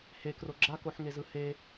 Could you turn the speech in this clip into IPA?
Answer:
h e k r o ɡ͡ǁ a k o ħ ŋ e z ɯ h e

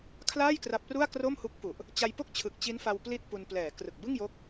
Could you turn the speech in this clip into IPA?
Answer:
kʰ l aː˥˩ j k r a˦˥ p̚ r u˥˩ a̯ k r o˥˩ m h u˦˥ k̚ f u˨˩ ʔ | t͡ɕ a˧ j p o˥˩ k̚ t͡ɕʰ ɯ˨˩ k̚ t͡ɕ i˦˥ n f a˧ w p l i˥˩ t̚ p u˧ n p l ɛː˩˦ k r ɯ˨˩ k̚ b ɯ˥˩ ŋ j o˦˥ k̚

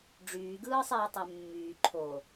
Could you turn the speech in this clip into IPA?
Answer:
ɖ͡ʐ yː ɡ ɯː sˤ iː tˤ ø mː yː ǃʰ o

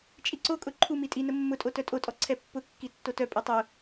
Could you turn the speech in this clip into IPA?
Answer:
t͡ʃʼ i ǀ o kʼ ʊ ǃʰ u m i tʼ i n ə mː ʊ tʼ o t œ tʼ o tʼ ɔ ǀʰ ɛ pː ʊ kː i tː o t œ pʼ i tˤ ʊ

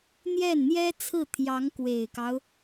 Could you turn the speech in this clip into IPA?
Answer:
n̪ j ɛ˥˩ n n̪ j ɛ˥ t͡sʰ ɹ̩˥˩ t̪ʰ j ɑ˧˥ ŋ k w e˨˩ ɪ̯ k ɑ˦ ʊ̯

